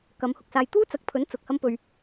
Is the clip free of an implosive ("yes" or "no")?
yes